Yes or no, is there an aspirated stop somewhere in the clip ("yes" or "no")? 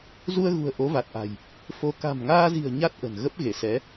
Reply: no